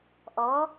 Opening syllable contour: rising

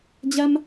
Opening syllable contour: high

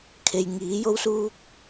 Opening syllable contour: low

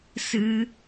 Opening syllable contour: high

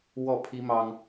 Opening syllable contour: falling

